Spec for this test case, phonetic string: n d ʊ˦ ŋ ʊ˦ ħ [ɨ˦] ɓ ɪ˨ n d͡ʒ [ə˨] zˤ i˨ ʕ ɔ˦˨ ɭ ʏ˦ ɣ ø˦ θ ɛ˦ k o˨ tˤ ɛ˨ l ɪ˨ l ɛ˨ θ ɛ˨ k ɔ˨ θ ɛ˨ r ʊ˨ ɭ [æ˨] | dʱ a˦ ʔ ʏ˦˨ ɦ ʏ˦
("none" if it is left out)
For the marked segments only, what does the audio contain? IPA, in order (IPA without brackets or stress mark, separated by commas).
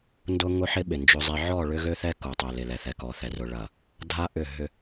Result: ɪ˦, ʊ˨, ɐ˨